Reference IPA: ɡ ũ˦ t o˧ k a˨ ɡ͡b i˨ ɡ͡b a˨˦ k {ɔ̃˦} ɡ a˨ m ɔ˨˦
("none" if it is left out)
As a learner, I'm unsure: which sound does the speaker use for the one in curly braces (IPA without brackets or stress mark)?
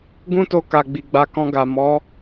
ɔ̃˧